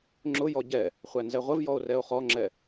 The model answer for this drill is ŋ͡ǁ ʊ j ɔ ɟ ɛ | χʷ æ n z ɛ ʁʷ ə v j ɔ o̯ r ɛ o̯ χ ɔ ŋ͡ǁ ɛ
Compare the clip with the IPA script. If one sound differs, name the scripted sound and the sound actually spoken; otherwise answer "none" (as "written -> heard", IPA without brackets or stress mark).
none